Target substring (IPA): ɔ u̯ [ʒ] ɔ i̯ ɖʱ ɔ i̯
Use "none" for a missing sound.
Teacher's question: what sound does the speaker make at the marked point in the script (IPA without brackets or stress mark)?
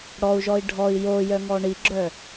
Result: ʒ